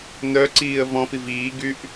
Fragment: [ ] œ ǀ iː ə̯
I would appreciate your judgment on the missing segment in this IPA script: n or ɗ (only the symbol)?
n